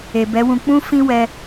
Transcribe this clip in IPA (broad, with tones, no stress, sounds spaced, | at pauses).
e˨ b ɛ˨˦ w ũ˧ k͡p ũ˦ f ĩ˦ w ɛ˧